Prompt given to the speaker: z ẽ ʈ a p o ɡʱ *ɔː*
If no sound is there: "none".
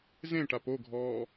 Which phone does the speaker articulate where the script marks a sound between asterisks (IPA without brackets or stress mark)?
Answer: ɔː